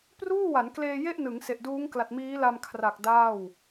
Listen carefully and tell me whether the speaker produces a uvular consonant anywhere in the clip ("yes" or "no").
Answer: no